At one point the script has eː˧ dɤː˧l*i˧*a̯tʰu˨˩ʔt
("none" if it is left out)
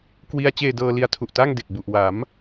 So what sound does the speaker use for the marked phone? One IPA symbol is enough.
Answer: i˧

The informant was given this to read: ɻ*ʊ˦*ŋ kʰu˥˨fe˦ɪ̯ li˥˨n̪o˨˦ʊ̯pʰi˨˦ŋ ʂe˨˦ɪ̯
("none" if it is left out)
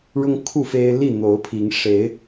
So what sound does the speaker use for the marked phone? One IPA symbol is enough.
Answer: ʊ˦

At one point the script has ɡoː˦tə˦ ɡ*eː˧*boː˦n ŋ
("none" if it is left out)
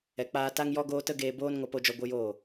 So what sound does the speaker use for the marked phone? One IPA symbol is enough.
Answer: eː˧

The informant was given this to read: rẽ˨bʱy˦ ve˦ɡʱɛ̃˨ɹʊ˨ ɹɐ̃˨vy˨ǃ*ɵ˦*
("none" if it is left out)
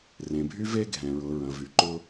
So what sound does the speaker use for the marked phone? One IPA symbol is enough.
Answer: ʊ˦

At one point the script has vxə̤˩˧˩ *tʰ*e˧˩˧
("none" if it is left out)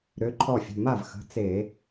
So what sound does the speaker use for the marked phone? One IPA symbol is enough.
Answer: t͡s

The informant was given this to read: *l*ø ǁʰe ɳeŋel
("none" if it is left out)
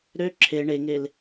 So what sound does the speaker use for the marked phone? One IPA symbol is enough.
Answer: ɾ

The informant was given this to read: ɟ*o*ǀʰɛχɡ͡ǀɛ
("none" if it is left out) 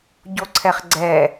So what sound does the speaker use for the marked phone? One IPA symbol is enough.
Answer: o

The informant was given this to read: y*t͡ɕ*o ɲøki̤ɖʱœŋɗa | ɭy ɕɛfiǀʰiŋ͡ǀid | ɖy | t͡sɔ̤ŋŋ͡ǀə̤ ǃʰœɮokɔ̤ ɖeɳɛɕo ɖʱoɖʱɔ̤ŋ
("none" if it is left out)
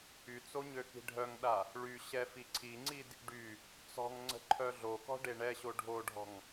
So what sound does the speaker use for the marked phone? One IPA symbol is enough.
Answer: t͡s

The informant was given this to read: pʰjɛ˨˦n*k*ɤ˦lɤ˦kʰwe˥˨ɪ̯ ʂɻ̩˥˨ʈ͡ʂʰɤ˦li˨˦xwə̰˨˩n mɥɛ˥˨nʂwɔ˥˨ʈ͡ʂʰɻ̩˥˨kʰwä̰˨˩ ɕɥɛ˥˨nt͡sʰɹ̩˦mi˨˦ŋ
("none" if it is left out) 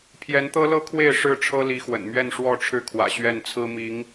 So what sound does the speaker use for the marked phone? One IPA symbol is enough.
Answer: t̪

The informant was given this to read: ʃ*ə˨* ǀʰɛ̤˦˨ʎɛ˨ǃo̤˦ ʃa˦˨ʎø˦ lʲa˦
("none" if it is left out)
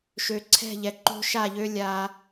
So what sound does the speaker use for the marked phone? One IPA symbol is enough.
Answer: ø˨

